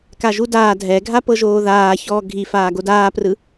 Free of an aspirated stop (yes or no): yes